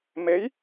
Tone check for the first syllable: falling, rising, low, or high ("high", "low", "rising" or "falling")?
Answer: rising